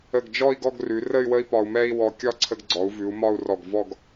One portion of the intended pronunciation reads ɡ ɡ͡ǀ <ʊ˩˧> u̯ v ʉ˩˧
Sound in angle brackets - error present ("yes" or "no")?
yes